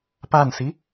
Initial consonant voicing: voiceless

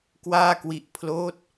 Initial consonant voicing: voiceless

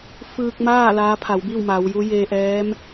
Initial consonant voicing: voiceless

